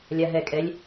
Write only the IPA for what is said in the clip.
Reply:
lʲ a ɦ ɛ kʼ ɛ lʲ

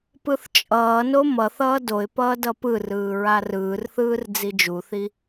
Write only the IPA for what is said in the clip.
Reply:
p ɯ θ t͡ʃʼ ʌː n o m ʌ θ ʌː d o ɪ̯ p ʌː d ʌ p ɯ r ɯː ɹ a r ɯː r θ ɯː r d͡z i d͡ʒ u θ i

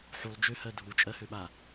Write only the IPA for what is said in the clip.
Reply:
ħ u lˠ d͡ʒ ø h ɜ dʱ u t͡ʃʼ ɜ h ø ɓ a

